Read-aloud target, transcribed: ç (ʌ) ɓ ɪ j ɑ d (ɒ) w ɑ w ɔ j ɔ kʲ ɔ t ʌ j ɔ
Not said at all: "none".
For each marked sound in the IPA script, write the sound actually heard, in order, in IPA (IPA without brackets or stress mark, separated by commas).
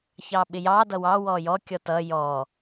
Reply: ɑ, ʌ